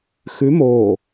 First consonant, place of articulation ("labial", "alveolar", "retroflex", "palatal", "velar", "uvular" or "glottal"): velar